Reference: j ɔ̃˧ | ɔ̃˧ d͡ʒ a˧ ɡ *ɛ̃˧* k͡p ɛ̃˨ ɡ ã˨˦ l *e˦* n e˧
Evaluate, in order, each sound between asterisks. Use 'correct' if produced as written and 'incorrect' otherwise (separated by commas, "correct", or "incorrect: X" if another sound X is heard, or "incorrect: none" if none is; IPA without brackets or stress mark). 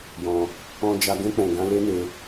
correct, correct